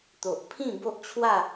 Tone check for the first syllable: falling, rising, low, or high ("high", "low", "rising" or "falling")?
low